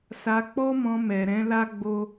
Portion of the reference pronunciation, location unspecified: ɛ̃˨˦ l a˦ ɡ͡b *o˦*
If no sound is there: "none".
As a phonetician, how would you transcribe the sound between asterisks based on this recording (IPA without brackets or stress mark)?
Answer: o˦